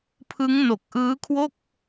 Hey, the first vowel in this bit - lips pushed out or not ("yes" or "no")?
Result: no